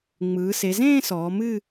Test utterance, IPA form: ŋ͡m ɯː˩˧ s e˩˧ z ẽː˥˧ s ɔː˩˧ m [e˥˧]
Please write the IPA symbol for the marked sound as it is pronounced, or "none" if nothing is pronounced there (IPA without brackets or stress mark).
ɨ˥˧